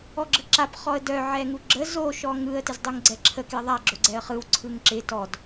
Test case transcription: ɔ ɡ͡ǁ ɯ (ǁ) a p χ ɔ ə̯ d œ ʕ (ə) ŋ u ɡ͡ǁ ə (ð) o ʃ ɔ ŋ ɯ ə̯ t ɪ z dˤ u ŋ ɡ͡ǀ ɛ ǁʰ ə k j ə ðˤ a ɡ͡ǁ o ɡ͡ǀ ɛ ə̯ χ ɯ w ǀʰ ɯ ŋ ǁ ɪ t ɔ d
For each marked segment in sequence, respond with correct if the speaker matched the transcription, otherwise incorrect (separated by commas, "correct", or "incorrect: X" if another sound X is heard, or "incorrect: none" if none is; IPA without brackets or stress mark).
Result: correct, incorrect: ɛ, incorrect: z